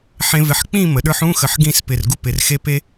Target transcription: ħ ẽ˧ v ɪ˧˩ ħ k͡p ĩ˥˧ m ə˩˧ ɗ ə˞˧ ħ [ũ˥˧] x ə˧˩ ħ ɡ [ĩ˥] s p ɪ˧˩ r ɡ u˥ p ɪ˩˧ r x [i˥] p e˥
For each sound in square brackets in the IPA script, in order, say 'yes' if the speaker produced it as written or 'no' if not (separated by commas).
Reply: yes, no, no